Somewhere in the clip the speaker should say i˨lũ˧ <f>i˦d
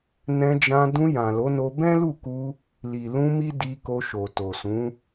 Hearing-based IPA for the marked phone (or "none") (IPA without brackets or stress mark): m